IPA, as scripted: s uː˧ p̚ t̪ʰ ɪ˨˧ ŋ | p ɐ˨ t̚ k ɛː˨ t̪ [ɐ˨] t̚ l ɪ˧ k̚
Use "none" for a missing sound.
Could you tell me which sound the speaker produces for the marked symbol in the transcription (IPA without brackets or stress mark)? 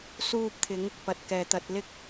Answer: ɐ˨